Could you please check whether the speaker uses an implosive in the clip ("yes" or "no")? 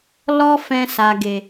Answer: no